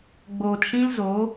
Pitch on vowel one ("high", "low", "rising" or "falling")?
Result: low